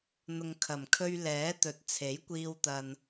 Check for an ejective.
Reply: absent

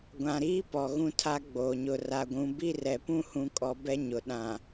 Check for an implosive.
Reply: present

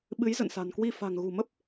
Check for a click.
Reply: absent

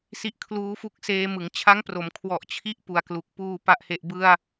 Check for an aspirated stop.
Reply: present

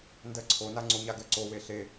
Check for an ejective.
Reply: absent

